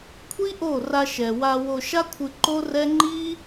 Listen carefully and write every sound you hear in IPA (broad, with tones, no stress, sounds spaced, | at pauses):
kʷʰ i˦ ʔ o˦˨ r a˧ ʃ ɛ˨ w a˧ w o˧ ʃ a˦ kʷʰ ɨ˧ ǃ o˦ r ɛ˦ ŋ͡ǃ i˦